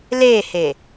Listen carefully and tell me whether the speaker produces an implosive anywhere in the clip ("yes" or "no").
no